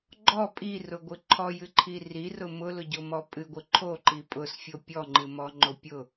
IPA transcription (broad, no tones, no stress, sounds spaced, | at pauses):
ɡ͡ǃ ɔ pʼ i r ʊ ɡʷ ɨ ǃʰ ɔ j ɨ ǃʰ i r i r ʊ m ʊ l ʊ ɟ o m ɔ pʼ ɨ ɡʷ ɨ ǃʰ o ǃ i pʼ ʊ s fʲ o pʲ ɔ ŋ͡ǃ ɨ m ɔ ŋ͡ǃ o pʲ ʊ